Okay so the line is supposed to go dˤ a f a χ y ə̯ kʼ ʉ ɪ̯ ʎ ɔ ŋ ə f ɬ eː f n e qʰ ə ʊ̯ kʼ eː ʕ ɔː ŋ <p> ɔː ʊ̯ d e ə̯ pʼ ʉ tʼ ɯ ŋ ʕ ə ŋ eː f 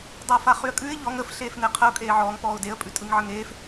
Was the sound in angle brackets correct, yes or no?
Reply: yes